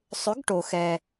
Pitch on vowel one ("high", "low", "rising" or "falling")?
rising